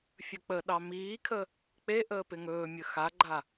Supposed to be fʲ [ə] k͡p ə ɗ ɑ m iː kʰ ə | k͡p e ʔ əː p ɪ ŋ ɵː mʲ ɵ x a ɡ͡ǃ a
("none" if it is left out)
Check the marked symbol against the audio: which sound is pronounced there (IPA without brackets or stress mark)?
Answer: ɵ